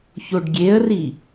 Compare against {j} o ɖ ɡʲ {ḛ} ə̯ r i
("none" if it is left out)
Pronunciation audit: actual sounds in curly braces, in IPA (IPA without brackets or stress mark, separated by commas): ç, e